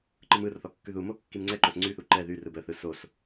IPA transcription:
ǃ ɯ m ɯ r θ ɔ kː ʉ ð u m o kː i m ŋ͡ǀ ɛ ǃ o s ŋ͡ǀ y θ u ǃ ɛ ð y r ɯ b ə θ ɯ s o s

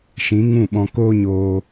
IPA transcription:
ʃ ĩ˨˦ ŋ ũ˦˨ ɓ ɔ̃˧ k oː˦ ɲ oː˧

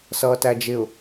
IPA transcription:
s ʌː t æ d͡ʒ ɪ ʊ̯

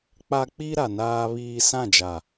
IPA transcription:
k͡p a˦ k͡p i˦ ɾ a˨ n aː˦ β iː˦ s ã˦˨ d͡ʒ a˨

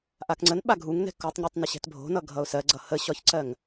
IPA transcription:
ʔ a k ŋ͡ǀ ə n ɓ a ɡʱ u ŋ n ɛ̤ k u tˤ ɲ ə tˤ n ə ɕ ɛ̤ t bʱ o̤ n ʌ ɡʱ ʌ ʊ̯ s ɜ ɡ͡ǀ ʌ h ə ɕ ɒ ç ǀ ɜ ŋ

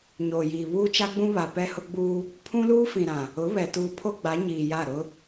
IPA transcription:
ɲ oː˨ j iː˨ β uː˦ t͡ʃ a˦ ɡ͡b ũ˦ β a˨ p ɛ˦ h ʊ˦ ɡ͡b uː˦ | pʰ ũ˦ l uː˦ f ĩ˨ ɾ ã˨ | ʊ˨˦ β ɛ˨ t uː˨ pʰ o˦ ɡ͡b a˨˦ ɲ iː˨ j a˦˨ ɾ ʊ˦

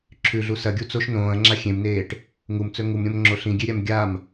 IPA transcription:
ǁʰ ʉ ɮ u s ɐ ɡʲ u t͡s o ʃ n õː ɐ̯ ŋ͡ǁ a xʲ ẽ m n eː ʈ | ŋ u m t͡s ɵ ŋ u m ɾʲ õ m ŋ͡ǁ o ɬ ĩ ɡʲ e ɾʲ a m ɡʲ a m

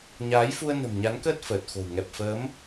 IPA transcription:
ɲ aː˨˦ j f u˧ ə̯ n ə̤˨˩ m ɲ a˨˦ n k əː˦˥ t̚ f əː˨˩ t̚ x o̤˨˩ w ŋ ɛ˨˩ p̚ f əː˨˦ m

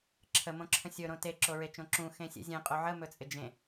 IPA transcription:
ǁʰ ə m õ ǁʰ ə̃ sʲ ɵ ɾ õ t e ǁ o ɹ e t͡ʃ õ ǁ ũ x ẽ sʲ ḛ zʲ ẽ qʼ o ʕ ə m ɵ t͡sʼ ɪ d͡ʒ ẽ

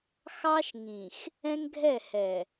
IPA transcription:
x ɑ˦ ʃ ŋ ĩ˨ x | ɛ̃˦ ŋ ɡʱ ɛ˦˨ h ɛ˨

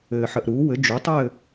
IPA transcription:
ɘː˧ ħ ə˧ ʔ ɾ uː˨˥ w ɘ˨˥ d͡ʒ u˨˥ tˤ ɘː˥˧

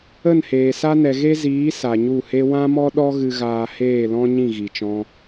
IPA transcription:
ə˦˨ n h eː˨ s a˦ n ɛ˨ ɣ e˦ z iː˨˦ s a˨ ɲ u˦˨ h e˦ w ã˦ m ɔ˦ ɗ ɔ˦ ɣ ɨ˧ ɣ aː˧ h eː˦˨ l ɔ̃˦ ɲ ĩ˦˨ ɣ i˨ t͡ʃ ɔ̃˧

